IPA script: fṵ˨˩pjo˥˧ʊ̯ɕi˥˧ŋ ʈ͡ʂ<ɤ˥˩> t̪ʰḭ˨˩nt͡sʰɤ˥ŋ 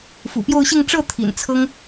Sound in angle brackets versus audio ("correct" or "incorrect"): correct